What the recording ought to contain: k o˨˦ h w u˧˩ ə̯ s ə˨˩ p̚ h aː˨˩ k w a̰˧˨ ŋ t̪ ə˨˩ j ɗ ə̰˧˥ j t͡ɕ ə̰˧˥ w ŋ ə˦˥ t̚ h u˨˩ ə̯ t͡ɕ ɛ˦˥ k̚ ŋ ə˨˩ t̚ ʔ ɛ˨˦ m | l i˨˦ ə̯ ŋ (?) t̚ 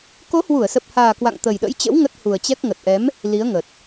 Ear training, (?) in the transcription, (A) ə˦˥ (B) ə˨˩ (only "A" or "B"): B